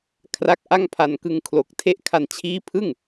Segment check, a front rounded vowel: absent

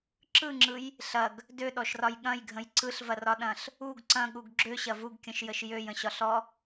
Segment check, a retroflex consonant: absent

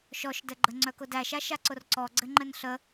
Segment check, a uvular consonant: absent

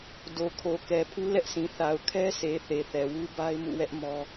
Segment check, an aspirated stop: present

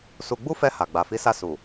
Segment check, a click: absent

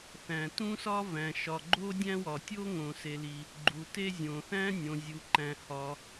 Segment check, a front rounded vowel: absent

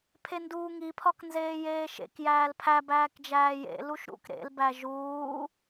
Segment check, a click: absent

